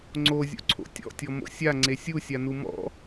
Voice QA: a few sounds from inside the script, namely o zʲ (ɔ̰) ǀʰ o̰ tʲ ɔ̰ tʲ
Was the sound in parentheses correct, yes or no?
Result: no